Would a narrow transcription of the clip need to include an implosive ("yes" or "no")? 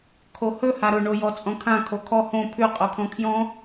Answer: no